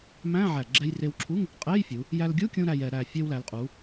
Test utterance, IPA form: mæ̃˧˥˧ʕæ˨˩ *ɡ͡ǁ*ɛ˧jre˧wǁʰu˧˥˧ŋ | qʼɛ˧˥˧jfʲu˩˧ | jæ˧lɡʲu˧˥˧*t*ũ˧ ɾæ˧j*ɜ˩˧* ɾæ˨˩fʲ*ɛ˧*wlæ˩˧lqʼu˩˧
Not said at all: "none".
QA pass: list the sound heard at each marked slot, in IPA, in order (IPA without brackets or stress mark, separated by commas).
ɡ͡ǁ, kʲ, ɛ˩˧, ɛ˧